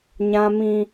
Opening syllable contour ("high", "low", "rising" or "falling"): high